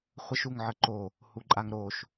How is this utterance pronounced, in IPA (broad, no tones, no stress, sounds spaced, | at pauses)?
χʷ ə ʃ u ŋ ʕ ə ǃ o | h u ǃʼ a ŋ ɾ o ʃ